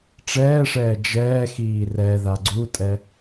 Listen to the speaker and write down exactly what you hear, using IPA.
ʈ͡ʂ ɛː ʂ ɛː d͡ʒ ɛː x iː r ɛ ð a ɡ͡ǀ u tʼ ɛ

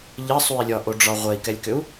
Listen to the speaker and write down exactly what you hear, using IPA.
ʎ ə sˤ u i̯ lʲ ɒ ʔ o ɖ͡ʐ ɒ ʁʷ ɛ i̯ k ɛ lʲ k ø u̯

